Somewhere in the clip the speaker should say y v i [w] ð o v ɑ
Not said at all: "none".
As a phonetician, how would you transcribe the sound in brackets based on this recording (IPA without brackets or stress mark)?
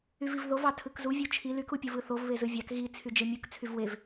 v